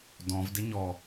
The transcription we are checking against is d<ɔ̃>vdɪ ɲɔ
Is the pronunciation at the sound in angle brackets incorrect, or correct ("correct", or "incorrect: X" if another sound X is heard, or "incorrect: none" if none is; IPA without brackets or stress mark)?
correct